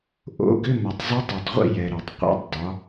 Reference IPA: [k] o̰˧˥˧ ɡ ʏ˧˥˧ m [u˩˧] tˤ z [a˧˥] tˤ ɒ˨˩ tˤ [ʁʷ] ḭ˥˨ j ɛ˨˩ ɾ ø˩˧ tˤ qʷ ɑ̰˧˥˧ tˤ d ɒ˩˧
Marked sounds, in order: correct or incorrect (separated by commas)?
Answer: incorrect, incorrect, correct, correct